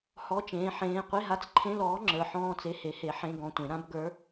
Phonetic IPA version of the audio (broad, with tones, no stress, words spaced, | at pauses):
hɔ˧˥˧t͡ʃẽː˨˥ ħẽː˧˥˧ qʷe˧˥˧ɦa˧˥˧t͡sǃʰẽ˧˥˧lɔː˨˥ ŋ͡ǁə˞˨˥ħɔ̃ː˧˥˧t͡se˧˥˧ he˨˥he˨˥ ħẽ˧˥˧ ɡɔ̃˧˥˧tʷẽ˨˥ ɾã˨˥b ɡə˞˨˥